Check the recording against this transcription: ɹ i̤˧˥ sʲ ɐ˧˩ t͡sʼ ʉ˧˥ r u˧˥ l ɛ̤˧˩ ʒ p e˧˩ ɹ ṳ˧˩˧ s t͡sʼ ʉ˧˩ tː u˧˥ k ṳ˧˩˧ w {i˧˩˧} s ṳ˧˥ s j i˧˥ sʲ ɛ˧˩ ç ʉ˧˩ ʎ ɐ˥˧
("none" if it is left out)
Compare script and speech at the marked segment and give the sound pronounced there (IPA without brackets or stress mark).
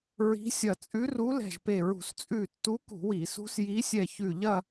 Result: i˧˩˧